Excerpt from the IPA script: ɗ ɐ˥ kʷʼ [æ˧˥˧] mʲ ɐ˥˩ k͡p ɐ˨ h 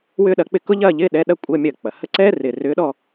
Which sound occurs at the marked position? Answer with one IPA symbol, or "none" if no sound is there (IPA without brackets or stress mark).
ɐ˧˥˧